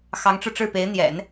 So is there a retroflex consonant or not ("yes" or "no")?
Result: yes